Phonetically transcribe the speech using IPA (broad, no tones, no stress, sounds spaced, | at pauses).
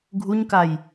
ɡʱ u ɲ k a j